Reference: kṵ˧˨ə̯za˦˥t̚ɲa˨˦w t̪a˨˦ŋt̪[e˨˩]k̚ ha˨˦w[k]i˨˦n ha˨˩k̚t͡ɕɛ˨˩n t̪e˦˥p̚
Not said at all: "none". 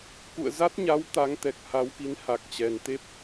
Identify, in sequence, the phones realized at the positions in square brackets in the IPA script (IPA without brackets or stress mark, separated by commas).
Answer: ɛ˨˩, k